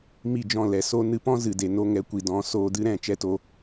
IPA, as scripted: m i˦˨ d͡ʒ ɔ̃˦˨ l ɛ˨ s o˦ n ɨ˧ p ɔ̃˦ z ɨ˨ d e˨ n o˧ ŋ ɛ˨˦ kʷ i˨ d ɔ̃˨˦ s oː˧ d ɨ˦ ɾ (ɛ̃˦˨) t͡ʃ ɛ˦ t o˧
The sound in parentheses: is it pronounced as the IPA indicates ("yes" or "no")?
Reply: yes